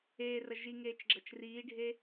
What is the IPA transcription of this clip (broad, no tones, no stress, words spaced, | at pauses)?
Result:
eːrɐ ʒiŋeːt͡ʃɡ͡ǁɐt͡ʃ riːɖʱe